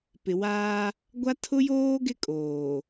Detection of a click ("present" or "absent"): absent